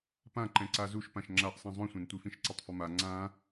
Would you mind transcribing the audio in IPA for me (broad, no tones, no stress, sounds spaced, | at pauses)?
p ã ǃ ɛ̃ ǀ a z u ʃ p ã ʃ ŋ͡ǁ a ʔ sˤ ĩ zˤ õ sʷ ɛ̃ n tʷ i f ĩ ʃ ǀ ʌ tˤ f ʌ m a ŋ͡ǀ ã